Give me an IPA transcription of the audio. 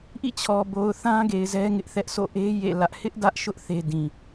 ʔḭ˦˨t͡ɕʰɔ˨ bo˨ʊ̯θã˦ɡe˨ɪ̯ zɛ˦ŋɪ˦ʔθɛ˦ʔ so̰˦˨ʔe˦ jḛ˦˨lä˦ʔ hɪ˦ʔdä˦ʔʃʊ˦ʔ θe˦dĩ˨

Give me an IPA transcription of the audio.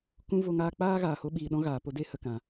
kũ˦vo˧ŋaː˦ k͡paː˦ ɣaː˨ho˧ ɓiː˨ɗɔ̃˦ ɣaː˨po˦ de˦hə˨kã˨

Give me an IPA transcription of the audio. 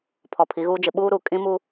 pʰɔ˨pʰi˨˦ɣuː˦d͡ʒɪ˨˦ ɓuː˦ɾu˨ kʼĩ˦mu˦

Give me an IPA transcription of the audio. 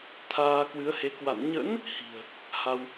t̪ʰaː˧kwɨ˨˦ə̯he˨˦ kwa̰˧˨n ɲə̰˧˥n | hi̤˨˩ə̯ | ha˧w

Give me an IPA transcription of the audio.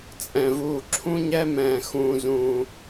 t͡sʼɛ̃˧vuː˧ ǁʰũ˥ɲɛ˥mɛ̃ː˧ xũː˧zũː˧

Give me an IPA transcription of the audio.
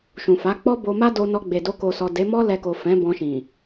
ʃũ˨fa˨˦ k͡pɔ˦bo˧ma˦ do˧nɔ˧ɡ͡be˨do˧ ko˨sɔ˨ de˨˦mɔ˦ lɛ˧ko˨ fɛ̃˨˦bɔ̃˧ʃĩ˨

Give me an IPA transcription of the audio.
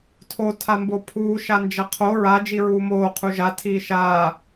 tʰo tʰambopʰuː ʃand͡ʒɐqʰo ɹa d͡ʒiɹuːmoː qʰuʒa tʰiːʃaː

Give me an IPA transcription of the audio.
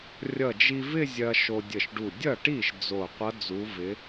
rʲʌ˧˩d͡ʒi˧vɪ˥˧ zʲɐ˧ ʃo˧dʲə˧˩ʃɖu˧˩ dʲʌ˥˩ʈi˥˩ʃ d͡zo˧˩qʷʌ˧˥ d͡zu˧˥vɪ˧˥

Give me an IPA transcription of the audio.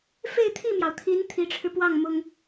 fe˥˧ɪ̯t̪ʰi˥˩mjɑ˩ʊ̯t̪ʰi˧˥n t̪ʰi˧˥ʈ͡ʂʰɻ̩˧pwɑ˥˩ŋ mʊ˥ŋ

